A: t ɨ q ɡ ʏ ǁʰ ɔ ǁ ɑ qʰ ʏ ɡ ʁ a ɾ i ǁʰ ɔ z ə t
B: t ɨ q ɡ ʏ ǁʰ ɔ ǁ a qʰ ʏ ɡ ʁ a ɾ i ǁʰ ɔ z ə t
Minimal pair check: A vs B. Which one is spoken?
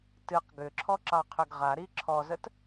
A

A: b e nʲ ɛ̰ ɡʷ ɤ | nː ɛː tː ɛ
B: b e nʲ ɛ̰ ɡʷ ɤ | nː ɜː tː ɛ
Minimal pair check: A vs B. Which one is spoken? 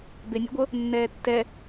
A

